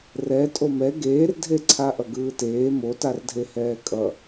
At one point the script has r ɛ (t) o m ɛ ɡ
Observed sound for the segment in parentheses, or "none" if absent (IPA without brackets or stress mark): tʼ